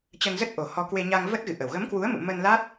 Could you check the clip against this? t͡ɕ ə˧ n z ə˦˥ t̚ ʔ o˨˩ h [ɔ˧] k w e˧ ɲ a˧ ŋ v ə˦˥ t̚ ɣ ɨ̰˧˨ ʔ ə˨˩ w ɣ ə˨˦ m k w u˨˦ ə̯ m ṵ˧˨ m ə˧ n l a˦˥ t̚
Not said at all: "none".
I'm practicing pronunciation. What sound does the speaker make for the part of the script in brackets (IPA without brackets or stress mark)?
ɔ˧